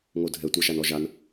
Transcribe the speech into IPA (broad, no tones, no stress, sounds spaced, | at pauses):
ŋ o dʱ ɛ tʷ a ʃ a n ɔ ʒ a n